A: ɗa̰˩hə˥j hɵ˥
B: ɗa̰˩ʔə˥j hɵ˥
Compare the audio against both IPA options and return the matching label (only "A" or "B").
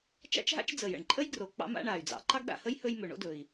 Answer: A